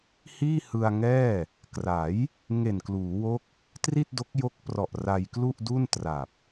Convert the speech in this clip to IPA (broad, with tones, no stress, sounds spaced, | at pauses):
h iː˥˩ h ɯ˧ a̯ ŋ ɛː˥˩ | k r a˩˦ j | ŋ e˨˩ n k l uː˩˦ w o˦˥ k̚ | t r i˥˩ t̚ d o˦˥ k̚ j o˦˥ k̚ p r ɔ˨˩ ʔ r a˧ j k l u˥˩ ʔ d u˥˩ n t r a˨˩ p̚